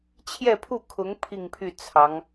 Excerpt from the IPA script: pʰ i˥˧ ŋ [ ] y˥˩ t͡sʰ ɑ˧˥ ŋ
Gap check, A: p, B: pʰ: B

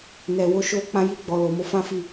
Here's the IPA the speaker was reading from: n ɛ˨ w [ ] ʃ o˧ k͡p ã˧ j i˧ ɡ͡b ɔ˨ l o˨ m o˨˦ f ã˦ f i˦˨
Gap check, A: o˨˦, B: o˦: A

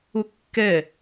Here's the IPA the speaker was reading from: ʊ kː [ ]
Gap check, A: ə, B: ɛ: B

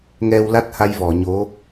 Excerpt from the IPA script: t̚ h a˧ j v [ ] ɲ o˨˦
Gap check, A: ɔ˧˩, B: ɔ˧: A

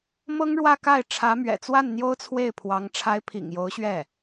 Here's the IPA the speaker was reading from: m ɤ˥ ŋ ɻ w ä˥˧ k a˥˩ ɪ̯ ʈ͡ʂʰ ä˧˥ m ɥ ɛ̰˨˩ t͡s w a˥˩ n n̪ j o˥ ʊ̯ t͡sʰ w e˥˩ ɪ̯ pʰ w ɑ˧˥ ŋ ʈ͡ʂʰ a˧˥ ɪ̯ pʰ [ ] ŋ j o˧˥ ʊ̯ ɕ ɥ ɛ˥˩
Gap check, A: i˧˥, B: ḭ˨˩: B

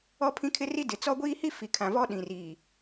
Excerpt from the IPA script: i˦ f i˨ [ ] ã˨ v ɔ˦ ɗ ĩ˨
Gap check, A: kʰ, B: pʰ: A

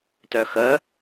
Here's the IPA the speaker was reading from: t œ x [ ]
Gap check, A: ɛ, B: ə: B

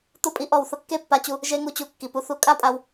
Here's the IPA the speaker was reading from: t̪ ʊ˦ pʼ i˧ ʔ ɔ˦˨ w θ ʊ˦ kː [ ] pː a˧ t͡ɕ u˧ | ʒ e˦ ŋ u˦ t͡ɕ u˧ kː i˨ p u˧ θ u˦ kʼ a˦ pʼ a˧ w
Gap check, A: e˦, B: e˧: A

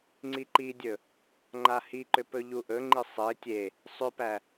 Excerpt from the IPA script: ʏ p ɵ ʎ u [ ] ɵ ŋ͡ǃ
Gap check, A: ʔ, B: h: A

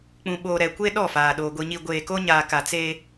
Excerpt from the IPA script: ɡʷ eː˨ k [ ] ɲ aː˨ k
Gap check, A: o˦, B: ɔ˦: A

